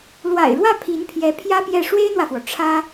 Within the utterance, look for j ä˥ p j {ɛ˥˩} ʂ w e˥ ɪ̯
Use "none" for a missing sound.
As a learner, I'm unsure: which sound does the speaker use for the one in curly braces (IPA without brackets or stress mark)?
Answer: ɛ˥˩